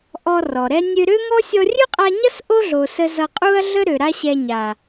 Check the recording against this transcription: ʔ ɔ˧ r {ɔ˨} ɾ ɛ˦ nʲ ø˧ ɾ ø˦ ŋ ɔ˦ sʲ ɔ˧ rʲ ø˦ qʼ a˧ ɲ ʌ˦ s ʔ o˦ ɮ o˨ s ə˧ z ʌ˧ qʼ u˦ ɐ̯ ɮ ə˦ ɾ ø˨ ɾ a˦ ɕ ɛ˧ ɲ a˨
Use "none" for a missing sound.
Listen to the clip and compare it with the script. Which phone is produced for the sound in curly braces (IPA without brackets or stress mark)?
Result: ɔ˨